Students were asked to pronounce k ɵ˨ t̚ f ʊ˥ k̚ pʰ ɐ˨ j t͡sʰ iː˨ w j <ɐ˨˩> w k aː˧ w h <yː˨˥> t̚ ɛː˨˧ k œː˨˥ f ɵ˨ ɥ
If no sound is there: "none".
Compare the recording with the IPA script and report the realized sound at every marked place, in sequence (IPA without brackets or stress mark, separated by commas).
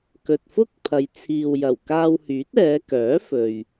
ɐ˨˩, yː˨˥